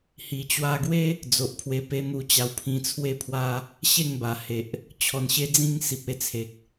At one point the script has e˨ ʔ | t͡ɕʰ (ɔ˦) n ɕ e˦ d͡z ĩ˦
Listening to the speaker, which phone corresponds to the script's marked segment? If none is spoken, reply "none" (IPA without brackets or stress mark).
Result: ɔ˨˩